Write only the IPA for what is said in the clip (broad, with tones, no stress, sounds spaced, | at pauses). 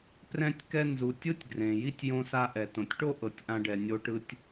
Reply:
p r ɛ̃˧ tʲ k ɛ˧ n z u˩ tʲ ɯ˥ tʲ ɡ r ẽ˩ j i˥ tʲ j õ˧ s a˧ ʔ ɛ˩ t õ˩ tʲ ʈ o˥ ʔ ɤ˩ tʲ ʔ ã˧ ɖ ɛ˩ nʲ o˧ ʈ ɯ˧ tʲ